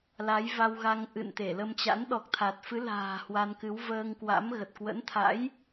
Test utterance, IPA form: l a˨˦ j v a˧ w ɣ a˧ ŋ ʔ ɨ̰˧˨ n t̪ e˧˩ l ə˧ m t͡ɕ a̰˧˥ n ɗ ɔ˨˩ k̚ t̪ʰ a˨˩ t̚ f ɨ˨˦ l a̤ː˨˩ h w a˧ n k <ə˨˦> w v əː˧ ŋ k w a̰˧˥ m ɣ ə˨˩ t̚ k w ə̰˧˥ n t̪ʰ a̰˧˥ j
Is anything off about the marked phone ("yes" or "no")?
yes